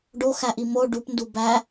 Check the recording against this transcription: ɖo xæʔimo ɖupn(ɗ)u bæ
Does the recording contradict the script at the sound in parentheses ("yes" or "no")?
yes